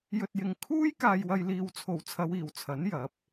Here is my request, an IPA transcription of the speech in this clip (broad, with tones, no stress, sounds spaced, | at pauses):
j ɵ˧ t̚ j ɪ˨˧ ŋ kʰ uː˥ j k aː˨ j w ɐ˨ j l iː˨ w t͡sʰ o˨˩ w t͡sʰ ɐ˨˧ w iː˨˩ w t͡sʰ ɐ˨˥ n j ɐ˨˥ p̚